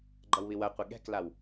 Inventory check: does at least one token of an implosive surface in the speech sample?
yes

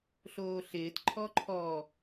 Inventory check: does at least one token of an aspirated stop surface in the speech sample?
yes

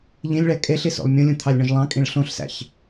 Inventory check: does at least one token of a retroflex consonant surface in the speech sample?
yes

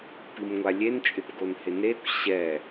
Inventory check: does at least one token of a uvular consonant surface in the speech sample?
no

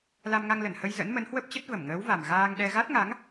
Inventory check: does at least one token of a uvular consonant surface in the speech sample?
no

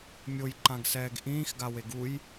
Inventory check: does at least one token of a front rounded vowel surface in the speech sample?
no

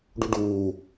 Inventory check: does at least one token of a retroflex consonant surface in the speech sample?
yes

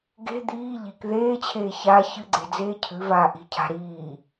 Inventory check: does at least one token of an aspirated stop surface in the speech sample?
yes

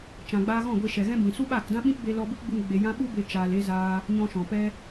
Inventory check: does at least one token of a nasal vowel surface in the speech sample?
yes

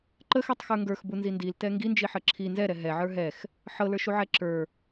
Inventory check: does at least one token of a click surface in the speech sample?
yes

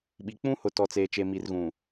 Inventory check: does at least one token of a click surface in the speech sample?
no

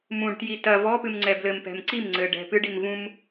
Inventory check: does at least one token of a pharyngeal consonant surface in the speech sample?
no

